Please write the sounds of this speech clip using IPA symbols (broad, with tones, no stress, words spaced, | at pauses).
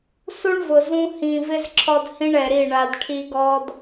su˦ɳvʊ˨ zũ˦ hĩ˨vɪ˦z ǁʰɔ˦dhĩ˦ɳɛ˨ɾi˦˨ ɳa˨d ʈʰi˦ɡɔ˦d